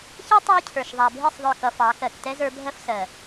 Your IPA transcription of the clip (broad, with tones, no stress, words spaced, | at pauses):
çɛ˦ tˤʌ˦jcʰə˞˨ʃ ðˤa˨bʱi˦˨sˤ ðˤə˞˦˨kʌ˧fɑ˨˦ kɜ˨ktɛ˦zə˞˧bʱɜ˦f sɜ˨